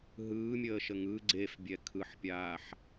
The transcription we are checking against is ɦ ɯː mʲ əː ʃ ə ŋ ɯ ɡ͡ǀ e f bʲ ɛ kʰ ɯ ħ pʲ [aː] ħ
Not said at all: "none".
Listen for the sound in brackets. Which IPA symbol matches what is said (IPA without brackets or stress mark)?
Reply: aː